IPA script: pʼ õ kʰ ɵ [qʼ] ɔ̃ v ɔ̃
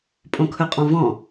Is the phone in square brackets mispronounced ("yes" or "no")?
no